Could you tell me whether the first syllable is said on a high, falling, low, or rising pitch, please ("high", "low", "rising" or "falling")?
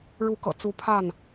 rising